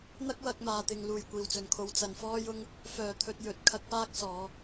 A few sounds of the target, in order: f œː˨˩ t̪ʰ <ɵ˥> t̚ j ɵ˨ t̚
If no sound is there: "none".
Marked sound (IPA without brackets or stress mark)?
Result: ɵ˨